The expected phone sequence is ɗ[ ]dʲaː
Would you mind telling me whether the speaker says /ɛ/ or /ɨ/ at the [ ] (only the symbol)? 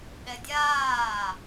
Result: ɛ